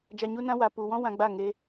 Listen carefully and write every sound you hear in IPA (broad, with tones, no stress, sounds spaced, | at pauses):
d͡ʒ a˧ ɲ u˦ n ã˦ w a˨ p u˨ w ɔ̃˦ w ã˧ ɡ͡b a˦˨ ŋ e˧